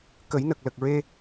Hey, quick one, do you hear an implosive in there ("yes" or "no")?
no